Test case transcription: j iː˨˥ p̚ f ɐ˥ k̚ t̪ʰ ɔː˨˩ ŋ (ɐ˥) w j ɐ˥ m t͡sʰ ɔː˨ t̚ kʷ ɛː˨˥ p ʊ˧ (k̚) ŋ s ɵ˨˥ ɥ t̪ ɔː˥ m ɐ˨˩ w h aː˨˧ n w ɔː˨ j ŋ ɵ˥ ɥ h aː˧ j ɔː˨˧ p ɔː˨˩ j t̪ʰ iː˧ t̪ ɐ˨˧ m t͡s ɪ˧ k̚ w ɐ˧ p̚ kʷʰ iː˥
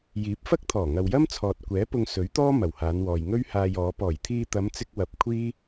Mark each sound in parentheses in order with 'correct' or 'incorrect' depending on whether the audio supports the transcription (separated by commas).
incorrect, incorrect